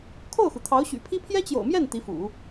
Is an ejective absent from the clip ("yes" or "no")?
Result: yes